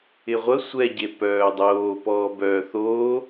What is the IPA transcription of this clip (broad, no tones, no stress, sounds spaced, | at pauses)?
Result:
ɪ ʁʷ ə sʷ ɛ ɟ e p œː dˤ oː p ɔː b œː θ oː